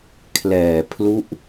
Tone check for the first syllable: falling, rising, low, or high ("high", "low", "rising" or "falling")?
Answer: low